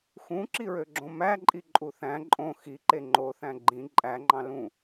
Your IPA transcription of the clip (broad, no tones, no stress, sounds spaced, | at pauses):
x ũ ǁ i ɹ ø ɡ͡ǁ õ m æ ǃʼ i ǃʼ u θ æ̃ ǃʼ õ x i ǃ e ŋ͡ǃ o θ æ̃ ɡ͡ǃ ĩ ǃʼ æ ŋ͡ǃ ɑ̃ l ũ